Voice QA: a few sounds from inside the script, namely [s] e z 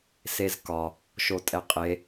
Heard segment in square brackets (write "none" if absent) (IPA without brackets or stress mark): s